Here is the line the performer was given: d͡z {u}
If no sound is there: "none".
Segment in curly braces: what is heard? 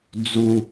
u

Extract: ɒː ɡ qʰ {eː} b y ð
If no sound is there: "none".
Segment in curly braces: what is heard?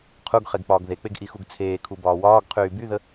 yː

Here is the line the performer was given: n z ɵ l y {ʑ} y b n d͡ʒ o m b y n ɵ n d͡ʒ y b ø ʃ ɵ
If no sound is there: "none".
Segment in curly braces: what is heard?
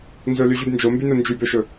ʑ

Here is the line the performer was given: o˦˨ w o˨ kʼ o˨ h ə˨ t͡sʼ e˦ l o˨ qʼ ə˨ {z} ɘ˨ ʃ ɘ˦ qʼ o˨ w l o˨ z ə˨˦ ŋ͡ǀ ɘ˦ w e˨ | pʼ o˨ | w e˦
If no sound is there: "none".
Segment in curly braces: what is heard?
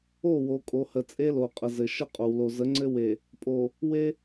z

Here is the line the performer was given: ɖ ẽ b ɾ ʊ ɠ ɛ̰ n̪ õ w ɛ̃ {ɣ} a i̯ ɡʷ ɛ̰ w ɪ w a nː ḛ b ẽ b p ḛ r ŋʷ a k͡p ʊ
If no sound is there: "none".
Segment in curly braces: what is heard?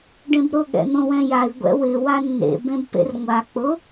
j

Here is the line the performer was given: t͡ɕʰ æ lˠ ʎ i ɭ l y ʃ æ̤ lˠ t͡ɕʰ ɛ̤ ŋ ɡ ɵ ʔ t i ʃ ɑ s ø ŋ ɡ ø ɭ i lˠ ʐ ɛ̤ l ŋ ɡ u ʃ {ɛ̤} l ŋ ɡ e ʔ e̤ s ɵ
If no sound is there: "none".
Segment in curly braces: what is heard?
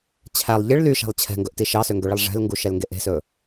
ɛ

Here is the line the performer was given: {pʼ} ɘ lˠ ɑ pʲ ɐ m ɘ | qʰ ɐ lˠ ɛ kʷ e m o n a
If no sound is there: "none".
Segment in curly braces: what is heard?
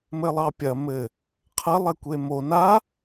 m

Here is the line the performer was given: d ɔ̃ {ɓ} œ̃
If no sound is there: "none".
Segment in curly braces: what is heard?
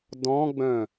ɡ͡b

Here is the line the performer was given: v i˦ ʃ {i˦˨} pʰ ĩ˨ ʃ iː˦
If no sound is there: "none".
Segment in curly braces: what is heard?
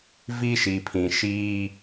i˨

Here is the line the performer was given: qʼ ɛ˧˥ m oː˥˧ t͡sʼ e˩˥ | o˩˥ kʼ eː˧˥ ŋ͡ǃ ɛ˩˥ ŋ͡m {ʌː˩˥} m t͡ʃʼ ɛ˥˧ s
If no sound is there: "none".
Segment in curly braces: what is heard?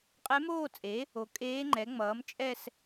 ʌː˩˥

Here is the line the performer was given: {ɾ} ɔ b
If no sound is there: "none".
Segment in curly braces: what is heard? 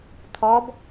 t̪ʰ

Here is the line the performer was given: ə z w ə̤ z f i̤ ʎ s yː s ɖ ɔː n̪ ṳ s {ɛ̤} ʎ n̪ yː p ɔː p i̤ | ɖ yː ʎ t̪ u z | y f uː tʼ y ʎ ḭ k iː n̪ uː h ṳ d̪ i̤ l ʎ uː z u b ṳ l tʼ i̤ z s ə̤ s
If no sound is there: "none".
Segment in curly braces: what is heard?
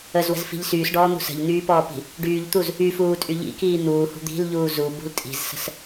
ə̤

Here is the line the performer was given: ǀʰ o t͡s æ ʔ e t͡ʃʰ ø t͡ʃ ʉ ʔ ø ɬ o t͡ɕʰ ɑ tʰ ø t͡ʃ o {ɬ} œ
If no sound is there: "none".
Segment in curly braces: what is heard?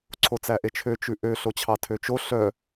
ɬ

